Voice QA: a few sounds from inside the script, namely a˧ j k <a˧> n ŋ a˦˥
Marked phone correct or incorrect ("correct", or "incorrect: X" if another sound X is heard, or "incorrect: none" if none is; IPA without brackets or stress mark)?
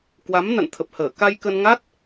incorrect: ə˧